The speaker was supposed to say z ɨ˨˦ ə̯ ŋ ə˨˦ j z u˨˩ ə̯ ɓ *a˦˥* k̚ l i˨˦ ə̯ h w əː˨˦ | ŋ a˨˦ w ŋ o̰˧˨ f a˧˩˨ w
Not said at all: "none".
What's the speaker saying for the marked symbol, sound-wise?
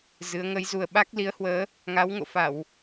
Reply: a˦˥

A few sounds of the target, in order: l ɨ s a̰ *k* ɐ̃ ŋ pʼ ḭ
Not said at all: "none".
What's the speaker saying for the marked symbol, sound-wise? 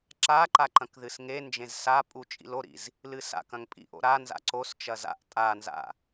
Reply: k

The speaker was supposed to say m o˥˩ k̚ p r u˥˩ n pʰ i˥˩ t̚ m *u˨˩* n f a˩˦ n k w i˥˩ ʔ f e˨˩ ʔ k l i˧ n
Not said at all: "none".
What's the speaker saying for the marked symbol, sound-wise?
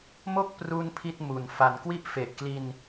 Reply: u˨˩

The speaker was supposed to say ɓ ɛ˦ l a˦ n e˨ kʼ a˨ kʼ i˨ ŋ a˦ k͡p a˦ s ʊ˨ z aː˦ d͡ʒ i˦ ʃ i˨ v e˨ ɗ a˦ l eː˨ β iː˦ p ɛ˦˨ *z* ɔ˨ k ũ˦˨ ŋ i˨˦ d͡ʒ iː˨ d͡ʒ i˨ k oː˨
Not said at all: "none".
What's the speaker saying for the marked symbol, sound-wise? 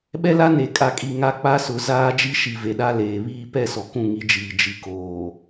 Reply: s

